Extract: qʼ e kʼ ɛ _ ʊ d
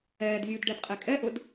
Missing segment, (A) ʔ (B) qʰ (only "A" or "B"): A